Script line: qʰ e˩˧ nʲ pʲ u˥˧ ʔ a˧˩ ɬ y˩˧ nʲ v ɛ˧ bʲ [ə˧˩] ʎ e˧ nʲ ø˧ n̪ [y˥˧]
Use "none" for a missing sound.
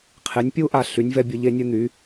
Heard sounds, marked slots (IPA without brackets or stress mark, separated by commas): ə˩˧, y˩˧